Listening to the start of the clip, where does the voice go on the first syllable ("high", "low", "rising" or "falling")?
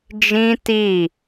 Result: high